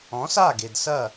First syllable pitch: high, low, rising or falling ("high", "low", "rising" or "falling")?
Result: rising